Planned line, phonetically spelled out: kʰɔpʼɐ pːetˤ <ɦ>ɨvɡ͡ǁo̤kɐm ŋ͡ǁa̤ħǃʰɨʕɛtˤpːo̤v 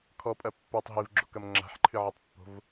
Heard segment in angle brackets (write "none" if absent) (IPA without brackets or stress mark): ɦ